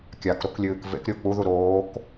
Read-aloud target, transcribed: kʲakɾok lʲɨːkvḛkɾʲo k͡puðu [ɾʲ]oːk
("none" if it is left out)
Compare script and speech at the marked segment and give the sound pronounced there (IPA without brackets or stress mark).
ɾ